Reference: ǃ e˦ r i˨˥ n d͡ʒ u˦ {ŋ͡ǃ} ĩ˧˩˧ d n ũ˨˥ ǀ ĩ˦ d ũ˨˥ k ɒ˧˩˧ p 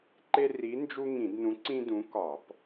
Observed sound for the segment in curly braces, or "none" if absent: ŋ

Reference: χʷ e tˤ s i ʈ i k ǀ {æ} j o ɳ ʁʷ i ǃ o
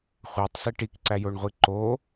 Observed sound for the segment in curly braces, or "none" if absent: æ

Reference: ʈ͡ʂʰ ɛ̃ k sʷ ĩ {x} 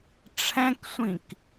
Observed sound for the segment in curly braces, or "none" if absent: k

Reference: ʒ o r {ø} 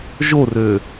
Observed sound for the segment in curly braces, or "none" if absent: ø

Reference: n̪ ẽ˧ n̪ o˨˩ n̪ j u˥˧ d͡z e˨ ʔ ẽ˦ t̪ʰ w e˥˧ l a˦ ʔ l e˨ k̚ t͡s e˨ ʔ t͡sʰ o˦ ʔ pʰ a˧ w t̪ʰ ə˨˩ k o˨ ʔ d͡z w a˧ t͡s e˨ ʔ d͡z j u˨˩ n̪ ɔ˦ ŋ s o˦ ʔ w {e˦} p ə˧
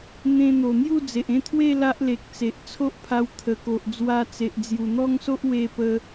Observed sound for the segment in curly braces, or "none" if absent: e˧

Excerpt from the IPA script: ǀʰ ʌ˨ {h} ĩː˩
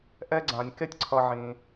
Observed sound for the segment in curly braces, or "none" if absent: ʕ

